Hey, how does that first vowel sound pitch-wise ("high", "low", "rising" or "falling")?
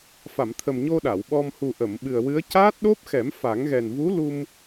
low